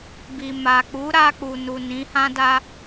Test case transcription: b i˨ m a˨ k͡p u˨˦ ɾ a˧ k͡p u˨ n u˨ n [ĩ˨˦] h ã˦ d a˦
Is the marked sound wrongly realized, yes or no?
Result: no